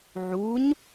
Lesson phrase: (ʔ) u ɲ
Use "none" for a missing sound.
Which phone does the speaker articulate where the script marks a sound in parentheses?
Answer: ʕ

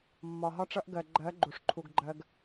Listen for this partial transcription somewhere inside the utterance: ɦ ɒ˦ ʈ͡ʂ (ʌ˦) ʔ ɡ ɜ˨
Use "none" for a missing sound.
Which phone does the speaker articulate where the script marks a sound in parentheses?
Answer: ʌ˦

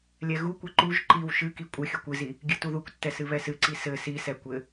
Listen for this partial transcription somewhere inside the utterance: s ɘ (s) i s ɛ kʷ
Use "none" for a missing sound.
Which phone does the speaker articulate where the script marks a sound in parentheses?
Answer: s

